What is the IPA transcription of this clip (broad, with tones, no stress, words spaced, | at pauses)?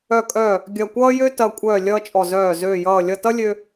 œ˧˩kʼœː˧˩ | ɡʲɐ˧˩ kʷʌː˦jø˦tɐ˧˩kʷʼœː˧˩ lʲʌː˦t͡ʃʼɔ˧˩ zœː˧˩ zøː˧˩jʌː˧˩ lʲʌ˧˩tʌ˦ lʲø˦